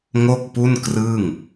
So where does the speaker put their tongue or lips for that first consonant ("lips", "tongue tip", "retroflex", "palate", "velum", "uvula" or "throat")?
velum